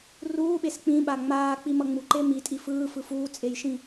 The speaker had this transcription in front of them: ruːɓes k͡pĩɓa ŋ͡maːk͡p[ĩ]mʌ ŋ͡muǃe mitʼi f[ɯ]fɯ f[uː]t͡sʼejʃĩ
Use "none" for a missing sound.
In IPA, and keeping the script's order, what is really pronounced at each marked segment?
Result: i, ɯː, uː

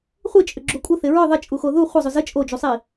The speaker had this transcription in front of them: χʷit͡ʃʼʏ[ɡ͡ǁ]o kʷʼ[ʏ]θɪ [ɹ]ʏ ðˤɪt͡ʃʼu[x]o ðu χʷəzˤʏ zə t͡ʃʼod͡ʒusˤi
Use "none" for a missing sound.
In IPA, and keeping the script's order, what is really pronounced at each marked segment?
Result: ɡ͡ǁ, ə, ɹ, x

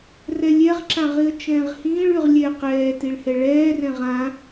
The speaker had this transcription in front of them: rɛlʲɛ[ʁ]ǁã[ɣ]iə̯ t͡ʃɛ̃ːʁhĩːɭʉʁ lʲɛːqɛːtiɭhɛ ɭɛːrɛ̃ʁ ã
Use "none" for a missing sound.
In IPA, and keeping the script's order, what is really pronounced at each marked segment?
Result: ʁ, ʁ

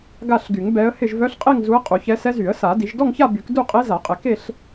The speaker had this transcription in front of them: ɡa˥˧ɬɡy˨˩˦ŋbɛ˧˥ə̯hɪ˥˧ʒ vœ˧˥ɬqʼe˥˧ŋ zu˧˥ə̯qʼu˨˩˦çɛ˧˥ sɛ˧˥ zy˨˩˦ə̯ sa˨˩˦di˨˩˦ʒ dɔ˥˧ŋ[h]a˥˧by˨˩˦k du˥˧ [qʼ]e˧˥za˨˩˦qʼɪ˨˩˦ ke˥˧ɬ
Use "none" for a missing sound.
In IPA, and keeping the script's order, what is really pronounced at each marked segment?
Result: ç, qʼ

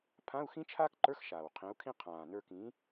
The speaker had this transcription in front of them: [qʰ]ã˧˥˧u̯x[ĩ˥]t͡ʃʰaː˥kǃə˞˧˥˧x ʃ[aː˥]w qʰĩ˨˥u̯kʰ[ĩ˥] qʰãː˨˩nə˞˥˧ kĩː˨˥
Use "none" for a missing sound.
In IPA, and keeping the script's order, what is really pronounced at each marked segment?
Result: pʰ, ĩ˥, aː˨˩, ĩ˥

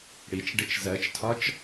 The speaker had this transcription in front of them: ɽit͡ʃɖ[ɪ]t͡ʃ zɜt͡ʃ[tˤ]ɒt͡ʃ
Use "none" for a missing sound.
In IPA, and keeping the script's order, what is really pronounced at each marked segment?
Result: ɪ, tʰ

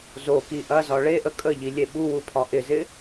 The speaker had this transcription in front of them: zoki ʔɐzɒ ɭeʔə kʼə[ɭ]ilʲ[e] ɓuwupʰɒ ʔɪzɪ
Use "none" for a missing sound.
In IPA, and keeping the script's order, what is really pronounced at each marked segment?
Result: ʎ, e

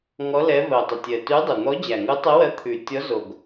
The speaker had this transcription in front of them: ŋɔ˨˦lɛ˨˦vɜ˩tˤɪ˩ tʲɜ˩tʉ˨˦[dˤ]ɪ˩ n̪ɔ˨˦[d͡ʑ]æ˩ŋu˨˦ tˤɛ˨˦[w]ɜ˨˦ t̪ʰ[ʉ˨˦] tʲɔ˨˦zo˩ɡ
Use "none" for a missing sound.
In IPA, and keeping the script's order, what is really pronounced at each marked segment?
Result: dˤ, d͡ʑ, w, ʉ˩

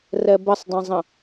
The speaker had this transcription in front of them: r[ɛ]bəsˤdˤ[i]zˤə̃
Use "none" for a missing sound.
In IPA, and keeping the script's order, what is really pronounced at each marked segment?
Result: ɛ, ĩ

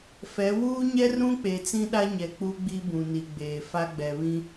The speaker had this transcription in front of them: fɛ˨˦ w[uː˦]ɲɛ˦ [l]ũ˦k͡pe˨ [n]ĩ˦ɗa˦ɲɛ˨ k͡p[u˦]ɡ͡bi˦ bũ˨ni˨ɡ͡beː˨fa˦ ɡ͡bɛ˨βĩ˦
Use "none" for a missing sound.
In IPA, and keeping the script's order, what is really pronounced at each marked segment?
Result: uː˦, r, t͡s, u˦

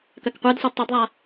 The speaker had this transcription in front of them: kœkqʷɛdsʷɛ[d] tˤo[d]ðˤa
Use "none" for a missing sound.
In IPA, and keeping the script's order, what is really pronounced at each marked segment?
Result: d, d

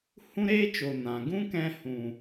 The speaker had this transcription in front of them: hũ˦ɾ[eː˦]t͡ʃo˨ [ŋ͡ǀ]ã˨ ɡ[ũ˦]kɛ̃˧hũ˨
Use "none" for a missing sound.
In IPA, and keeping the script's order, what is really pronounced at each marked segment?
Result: eː˦, n, ũ˦

